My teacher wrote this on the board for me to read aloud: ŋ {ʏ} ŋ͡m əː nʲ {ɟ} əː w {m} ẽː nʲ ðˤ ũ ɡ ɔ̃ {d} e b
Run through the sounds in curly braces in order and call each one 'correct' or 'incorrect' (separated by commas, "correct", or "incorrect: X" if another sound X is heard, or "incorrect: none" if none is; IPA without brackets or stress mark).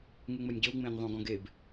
incorrect: u, correct, incorrect: ŋ͡m, incorrect: ɡ